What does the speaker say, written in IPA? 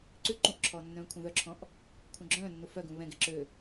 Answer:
ǀ ʉ ǃ ũ ʔ ǁʰ ɔː nː œ̃ː kʷʰ œ̃ ð œ ǁʰ ɔ̃ ʔ | kʷʰ œ̃ ɡ͡ǁ œ̃ː nː u f œ ɡ ũ β ɛ̃ ɡ ɛ ǁ ø

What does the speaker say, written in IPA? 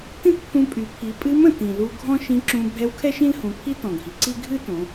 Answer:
t ĩ˥ t pʰ ũ˧ pʼ y˩˧ pʰ i˩˧ pʼ ɨ˧˥ m ə̃˩ t ĩ˩ l u˧ ɡʱ ɔ̃˥ ʃ ĩ˧˥ ǁ ũ˧ bʱ ɛ˧˥ w kʰ ɛ˥ ʃ ĩ˥ l h ũ˩˧ pʰ i˥ t ɔ̃˩ ɡʱ i˩ ǀ i˥ ɡʱ ɨ˥ t õ˩˧

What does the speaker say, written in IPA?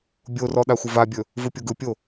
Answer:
bʲ o r ɔ ɗ a xʷ ə v a bʲ ɵ | v ɯ pʲ o ɡ ɯ pʲ o

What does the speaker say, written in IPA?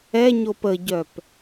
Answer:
ɛ ɲ o p ə ɟ œ p

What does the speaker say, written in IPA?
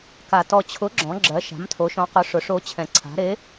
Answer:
k a˧ t ɔ˧ t͡ɕʰ ʊ˧˥ ɡ͡ǁ ɔ̃˧˥ ɡ͡ǁ ɜ˧˥ ʃ a̤˧˥ m tʰ o˧˥ ʃ ɔ̃˧˥ q ʊ˧˥ ʂ ʊ˧˥ ʂ o˧˥ t͡ɕʰ ɛ̃˧ ǀʰ a̤˧˥ ɾ e˧˥

